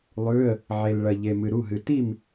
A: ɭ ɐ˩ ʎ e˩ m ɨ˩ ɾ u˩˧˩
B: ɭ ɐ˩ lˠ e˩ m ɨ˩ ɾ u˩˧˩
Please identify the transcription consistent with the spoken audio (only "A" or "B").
A